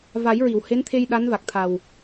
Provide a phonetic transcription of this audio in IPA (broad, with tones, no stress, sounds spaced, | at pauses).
v a˨˩˦ j ɹ i˨˩˨ w h e˧˥ n t̪ʰ e˧ j ɗ a˧˥ n v a˨˩ k̚ t̪ʰ a˨˩ w